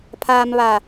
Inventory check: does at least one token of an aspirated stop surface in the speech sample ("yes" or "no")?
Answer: yes